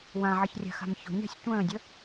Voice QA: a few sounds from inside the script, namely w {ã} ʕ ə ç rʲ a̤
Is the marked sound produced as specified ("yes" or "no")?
yes